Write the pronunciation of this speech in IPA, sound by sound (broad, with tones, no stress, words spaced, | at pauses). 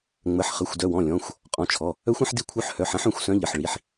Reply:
ŋ͡mə˩˧˩ħχə˩˧˩xʷ dœ˩˧˩wɔ̃˩˧˩ lʲɔ̃˩˧˩xʷ | qʼɔ̃˩˧˩t͡ʃʰɔ˩˧˩ | œ˧˥xʷɐ̃˧˥ħ di˧˥kʷʰœ˧˥ħhœ˩˧˩ħɐ̃˧˥ħ œ̃˩˧˩xʷsœ̃˧˥ ʎə˩˧˩ħɭi˩˧˩ħ